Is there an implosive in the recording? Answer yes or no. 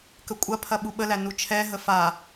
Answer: yes